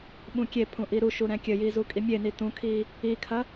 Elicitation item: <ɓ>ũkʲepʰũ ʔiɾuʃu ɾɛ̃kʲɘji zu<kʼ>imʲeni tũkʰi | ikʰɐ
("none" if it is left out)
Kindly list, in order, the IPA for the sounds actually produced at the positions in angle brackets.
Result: ɓ, kʼ

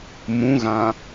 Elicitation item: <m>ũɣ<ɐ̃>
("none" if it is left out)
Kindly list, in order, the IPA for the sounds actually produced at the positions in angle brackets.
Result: m, ã

